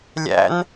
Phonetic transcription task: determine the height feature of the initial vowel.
low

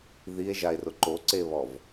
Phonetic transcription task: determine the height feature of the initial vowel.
high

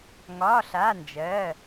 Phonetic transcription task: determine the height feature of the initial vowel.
low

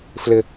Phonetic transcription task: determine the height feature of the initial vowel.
high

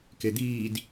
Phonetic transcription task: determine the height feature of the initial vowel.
mid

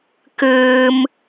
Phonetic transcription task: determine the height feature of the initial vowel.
high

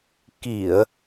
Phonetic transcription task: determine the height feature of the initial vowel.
high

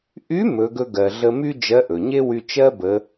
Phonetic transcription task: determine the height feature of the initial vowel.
high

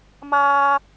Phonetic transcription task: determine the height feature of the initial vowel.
low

